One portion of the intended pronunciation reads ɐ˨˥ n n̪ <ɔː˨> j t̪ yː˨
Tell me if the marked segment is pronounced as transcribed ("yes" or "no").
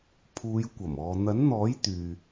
no